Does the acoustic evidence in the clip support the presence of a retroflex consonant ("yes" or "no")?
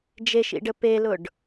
yes